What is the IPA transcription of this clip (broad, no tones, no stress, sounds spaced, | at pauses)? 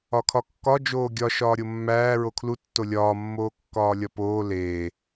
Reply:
ɒ kʰ ɒ kː ɒ d͡ʒ oː ɡʲ ɒ ʃ ɒː ɾʲ o mː æː ɹ o kʰ l u tː o lʲ ɒː mː oː kː ɒː lʲ ɒ p oː l eː